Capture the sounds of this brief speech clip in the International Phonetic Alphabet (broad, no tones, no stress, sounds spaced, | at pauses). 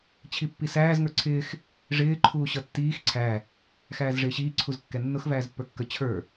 t͡ɕʰ i pː i s æː z ŋ ə˞ ǀʰ ɪː x | ʐ ɪː ǃʰ uː ɕ ʌ tː iː x ǀʰ æ | x æː z ʐ ɪː ɕ iː ǀʰ u z kː ɛ nː ʊ x v æː z pː ə˞ kː ə t͡ɕʰ ə˞